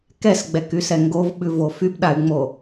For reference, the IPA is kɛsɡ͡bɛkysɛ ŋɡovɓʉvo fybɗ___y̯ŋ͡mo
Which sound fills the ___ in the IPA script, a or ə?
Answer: a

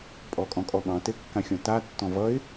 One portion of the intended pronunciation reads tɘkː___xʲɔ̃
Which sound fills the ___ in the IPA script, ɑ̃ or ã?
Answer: ã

